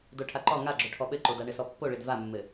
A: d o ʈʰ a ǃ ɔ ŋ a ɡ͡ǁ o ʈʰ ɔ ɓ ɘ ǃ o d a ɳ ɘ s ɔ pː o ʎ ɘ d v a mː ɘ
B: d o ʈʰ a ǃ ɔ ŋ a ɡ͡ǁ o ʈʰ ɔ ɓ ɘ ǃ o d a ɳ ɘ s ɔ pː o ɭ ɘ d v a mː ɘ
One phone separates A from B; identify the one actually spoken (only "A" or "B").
B